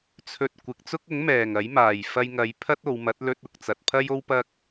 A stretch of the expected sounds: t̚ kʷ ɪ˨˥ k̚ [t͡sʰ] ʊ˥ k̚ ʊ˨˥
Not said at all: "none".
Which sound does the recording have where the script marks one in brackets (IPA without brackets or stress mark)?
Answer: t͡s